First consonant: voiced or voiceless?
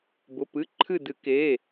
voiced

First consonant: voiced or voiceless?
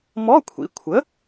voiced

